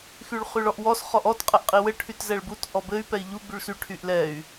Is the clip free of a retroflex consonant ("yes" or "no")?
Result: no